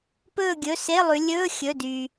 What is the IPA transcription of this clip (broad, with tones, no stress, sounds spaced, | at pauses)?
p ɵː˦˨ ɡʲ ɵ˩˧˩ s e˧˥˧ lˠ ʉ˩˧ lʲ ɵː˧˥˧ xʲ ɵ˩˧˩ d y˩